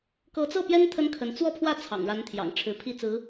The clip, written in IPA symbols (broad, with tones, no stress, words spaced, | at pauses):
kɤ˧˥t͡sɤ˥˩pjɛ˥n t̪ʰə˥nkʰə˧˥n t͡swɔ˥˧pʰwä˥˩ t͡sʰɑ̰˨˩ŋɻa˧˥nt̪ʰjɑ̰˨˩ŋ ʈ͡ʂʰɻ̩˧˥pʰi˥˩t͡sɹ̩˧˥